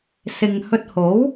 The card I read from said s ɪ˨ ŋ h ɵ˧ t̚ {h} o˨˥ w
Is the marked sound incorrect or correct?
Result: correct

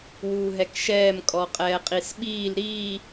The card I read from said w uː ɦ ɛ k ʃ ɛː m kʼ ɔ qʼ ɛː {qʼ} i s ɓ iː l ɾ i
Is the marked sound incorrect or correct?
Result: correct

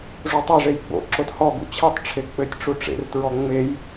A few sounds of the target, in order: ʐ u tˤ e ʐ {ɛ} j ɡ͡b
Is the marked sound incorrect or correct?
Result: incorrect: e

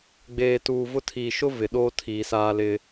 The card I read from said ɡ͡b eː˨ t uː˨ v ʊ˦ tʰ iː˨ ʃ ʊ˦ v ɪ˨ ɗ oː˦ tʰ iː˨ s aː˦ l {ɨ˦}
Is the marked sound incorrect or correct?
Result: incorrect: ɪ˦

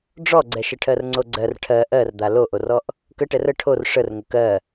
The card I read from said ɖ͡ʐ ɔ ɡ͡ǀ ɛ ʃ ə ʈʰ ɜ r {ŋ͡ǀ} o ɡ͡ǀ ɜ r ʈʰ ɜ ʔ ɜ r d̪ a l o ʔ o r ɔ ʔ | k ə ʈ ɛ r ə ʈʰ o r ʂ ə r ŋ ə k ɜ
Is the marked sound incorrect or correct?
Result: correct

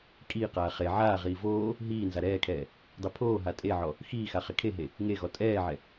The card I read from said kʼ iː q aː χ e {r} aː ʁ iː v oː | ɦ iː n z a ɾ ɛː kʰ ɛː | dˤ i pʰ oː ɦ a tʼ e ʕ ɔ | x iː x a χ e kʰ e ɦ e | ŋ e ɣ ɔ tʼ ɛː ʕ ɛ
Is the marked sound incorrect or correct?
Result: incorrect: ʕ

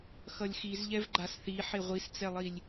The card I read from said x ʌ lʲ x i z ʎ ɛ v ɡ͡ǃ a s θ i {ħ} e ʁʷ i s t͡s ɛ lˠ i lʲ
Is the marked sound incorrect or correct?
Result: correct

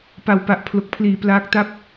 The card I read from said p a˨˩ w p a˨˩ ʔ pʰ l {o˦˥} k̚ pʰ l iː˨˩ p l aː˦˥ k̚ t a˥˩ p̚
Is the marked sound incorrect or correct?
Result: incorrect: o˨˩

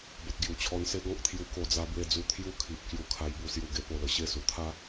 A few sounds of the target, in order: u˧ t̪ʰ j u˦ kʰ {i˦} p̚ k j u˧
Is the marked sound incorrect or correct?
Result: incorrect: i˨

